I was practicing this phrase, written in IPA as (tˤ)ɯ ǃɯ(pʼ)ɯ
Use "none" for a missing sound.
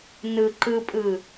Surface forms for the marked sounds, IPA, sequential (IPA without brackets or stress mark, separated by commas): n, pʼ